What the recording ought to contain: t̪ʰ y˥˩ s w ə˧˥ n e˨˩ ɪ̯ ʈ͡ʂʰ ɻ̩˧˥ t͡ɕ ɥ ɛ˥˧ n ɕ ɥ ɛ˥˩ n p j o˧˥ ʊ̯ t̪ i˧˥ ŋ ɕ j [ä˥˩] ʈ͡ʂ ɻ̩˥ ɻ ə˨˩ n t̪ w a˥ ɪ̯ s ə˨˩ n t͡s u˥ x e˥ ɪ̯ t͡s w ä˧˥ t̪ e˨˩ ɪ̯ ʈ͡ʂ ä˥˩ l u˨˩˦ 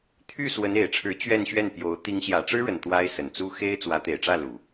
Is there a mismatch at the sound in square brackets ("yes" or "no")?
yes